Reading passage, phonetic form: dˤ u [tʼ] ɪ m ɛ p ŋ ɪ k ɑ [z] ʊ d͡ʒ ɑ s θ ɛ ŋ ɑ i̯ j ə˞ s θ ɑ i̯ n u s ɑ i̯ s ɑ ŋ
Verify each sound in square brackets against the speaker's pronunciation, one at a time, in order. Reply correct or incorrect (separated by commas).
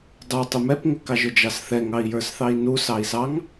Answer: incorrect, incorrect